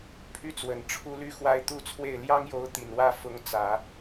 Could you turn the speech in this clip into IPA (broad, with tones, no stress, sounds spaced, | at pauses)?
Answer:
pʰ y˥˩ t͡s w ə˨˩ n ʈ͡ʂʰ u˥ l y˥ x w a˥ ɪ̯ t̪ u˥˧ t͡sʰ w e˥˩ ɪ̯ l j ɑ˥ ŋ j o˧˥ ʊ̯ t̪ i˨˩ n w ä˥˩ f ʊ˧˥ ŋ t͡s ä˨˩˦